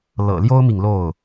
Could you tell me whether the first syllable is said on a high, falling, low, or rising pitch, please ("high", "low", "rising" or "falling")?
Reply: low